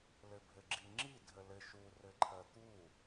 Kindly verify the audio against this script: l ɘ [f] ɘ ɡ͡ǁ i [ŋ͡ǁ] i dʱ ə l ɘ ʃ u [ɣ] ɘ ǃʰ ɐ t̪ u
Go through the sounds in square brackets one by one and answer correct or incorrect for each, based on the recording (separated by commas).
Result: incorrect, correct, incorrect